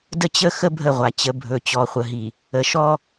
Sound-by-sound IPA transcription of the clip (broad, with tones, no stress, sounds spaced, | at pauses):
d ə˦ t͡ɕ ə˦ x ə˦ bʱ ə˦˨ ʁʷ a˨ t͡ɕ ə˨˦ bʱ ɵ˨ t͡ɕ ɔ˨ χʷ ə˨ ɦ i˨ | ə˨ ʃ ɔ˦